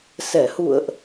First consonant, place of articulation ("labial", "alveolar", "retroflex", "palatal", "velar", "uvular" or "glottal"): alveolar